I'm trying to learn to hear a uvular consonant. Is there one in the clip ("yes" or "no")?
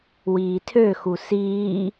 no